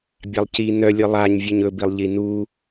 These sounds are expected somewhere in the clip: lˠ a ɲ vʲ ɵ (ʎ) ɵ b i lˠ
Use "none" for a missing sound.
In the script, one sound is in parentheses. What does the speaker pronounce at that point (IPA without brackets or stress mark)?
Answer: ɲ